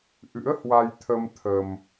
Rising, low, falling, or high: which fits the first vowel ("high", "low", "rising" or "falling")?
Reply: rising